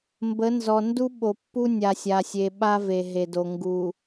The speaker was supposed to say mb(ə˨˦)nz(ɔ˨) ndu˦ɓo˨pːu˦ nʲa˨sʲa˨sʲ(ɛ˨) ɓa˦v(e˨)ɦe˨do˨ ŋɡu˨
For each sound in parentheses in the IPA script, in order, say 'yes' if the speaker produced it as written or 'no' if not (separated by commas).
yes, yes, no, yes